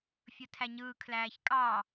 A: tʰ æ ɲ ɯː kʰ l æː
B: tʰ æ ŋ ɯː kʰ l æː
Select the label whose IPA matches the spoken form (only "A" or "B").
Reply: A